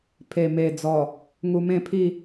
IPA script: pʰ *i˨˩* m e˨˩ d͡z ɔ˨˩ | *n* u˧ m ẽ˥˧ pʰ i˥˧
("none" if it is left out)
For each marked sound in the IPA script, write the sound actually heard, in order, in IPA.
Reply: e˨˩, ŋ

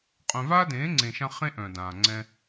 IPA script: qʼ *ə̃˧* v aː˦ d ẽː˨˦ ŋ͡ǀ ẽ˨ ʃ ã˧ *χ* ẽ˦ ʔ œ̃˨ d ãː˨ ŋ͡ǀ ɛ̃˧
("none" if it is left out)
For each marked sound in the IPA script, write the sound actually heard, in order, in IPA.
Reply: œ̃˧, χ

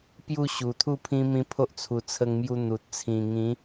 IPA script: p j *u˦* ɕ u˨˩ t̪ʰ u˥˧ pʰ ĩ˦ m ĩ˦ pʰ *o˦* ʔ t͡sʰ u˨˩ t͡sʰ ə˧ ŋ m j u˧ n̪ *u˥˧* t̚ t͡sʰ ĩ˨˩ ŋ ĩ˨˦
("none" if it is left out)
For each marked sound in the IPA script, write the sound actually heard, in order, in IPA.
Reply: u˥˧, o˦, u˨

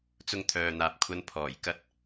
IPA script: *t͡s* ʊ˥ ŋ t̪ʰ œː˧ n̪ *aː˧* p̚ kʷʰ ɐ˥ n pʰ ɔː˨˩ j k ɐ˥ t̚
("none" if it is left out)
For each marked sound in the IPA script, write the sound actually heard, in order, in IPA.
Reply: t͡s, aː˧

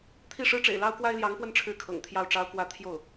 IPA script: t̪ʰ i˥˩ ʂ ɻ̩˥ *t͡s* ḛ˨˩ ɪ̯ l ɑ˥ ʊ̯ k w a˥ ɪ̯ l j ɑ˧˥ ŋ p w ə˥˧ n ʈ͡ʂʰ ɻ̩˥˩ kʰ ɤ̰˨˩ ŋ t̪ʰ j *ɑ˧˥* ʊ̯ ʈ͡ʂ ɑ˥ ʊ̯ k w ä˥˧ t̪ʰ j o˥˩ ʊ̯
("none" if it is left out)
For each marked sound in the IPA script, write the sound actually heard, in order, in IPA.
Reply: ʈ͡ʂ, ɑ˥˩

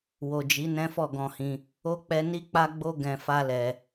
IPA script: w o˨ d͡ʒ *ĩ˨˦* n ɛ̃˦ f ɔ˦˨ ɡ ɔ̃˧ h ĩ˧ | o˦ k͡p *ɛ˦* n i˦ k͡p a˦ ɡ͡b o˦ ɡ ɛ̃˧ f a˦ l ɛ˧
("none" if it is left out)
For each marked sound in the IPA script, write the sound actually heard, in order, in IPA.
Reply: i˨˦, ɛ˦

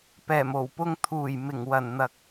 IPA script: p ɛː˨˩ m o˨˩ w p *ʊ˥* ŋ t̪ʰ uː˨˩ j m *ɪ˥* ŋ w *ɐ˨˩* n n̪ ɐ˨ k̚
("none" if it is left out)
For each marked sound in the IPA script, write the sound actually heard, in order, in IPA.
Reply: ʊ˧, ɪ˨˩, ɐ˨˩

